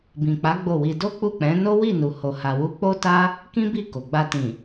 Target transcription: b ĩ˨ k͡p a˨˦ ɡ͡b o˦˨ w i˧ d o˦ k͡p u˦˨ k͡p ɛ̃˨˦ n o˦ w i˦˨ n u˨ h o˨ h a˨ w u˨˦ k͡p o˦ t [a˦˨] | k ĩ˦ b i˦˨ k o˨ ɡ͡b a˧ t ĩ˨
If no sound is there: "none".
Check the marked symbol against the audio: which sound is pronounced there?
a˦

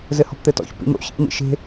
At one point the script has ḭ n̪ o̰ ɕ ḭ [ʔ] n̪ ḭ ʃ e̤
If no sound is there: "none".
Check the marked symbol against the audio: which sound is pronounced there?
ʔ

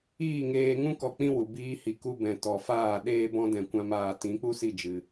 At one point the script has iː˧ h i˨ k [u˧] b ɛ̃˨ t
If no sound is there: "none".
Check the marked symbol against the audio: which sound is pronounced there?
u˧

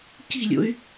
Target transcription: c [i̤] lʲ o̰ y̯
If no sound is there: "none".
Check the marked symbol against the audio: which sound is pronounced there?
i̤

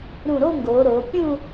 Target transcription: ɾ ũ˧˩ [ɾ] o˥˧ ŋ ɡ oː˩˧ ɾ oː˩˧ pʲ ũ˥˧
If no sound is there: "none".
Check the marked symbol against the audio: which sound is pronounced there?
ɾ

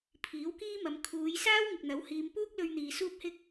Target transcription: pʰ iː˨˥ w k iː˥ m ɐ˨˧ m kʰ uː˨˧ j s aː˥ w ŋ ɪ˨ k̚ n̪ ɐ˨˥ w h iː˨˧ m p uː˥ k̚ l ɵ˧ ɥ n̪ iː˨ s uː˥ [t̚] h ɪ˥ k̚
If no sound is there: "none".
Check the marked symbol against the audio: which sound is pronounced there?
p̚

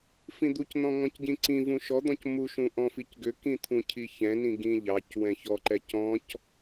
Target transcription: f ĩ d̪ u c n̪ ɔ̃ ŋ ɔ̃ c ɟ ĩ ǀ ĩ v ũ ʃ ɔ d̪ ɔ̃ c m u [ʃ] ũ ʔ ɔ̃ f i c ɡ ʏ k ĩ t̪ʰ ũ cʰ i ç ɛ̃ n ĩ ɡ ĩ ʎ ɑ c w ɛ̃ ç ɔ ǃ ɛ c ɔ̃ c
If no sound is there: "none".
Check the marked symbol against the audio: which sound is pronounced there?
ʃ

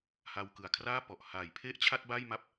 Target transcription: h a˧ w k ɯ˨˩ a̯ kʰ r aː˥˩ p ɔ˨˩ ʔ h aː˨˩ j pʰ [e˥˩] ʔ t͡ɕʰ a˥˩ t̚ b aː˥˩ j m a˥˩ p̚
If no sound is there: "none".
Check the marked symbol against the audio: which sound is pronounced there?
e˥˩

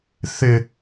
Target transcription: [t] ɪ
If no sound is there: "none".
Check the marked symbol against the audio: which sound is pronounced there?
θ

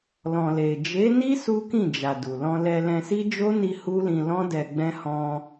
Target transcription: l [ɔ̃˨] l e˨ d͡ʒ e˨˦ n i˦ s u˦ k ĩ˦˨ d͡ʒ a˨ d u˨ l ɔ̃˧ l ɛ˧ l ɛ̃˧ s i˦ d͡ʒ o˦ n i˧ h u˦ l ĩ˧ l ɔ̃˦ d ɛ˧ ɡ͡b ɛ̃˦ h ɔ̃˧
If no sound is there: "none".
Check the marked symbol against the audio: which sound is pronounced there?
ɔ̃˨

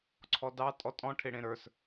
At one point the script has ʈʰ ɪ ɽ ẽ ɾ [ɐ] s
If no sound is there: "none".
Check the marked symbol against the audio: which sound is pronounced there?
ə˞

